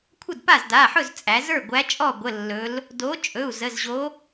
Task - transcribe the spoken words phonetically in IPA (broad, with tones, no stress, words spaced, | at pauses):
kʷʰə˥˩dpa˥˩zda˩˧˩ħɵ˥˩z t͡sʼæ˩˧zə˞˥˩ ɡʷæ˨˥t͡ʃʼɔ˥˩ ɡʷə˩˧˩ lːɵ˩˧l | do˨˥ t͡ʃʼɵ˩˧˩u̯ zə˩˧˩zʑo˨˥